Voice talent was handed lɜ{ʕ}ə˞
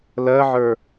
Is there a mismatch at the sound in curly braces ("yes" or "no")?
no